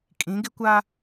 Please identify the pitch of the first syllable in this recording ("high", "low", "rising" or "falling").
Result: rising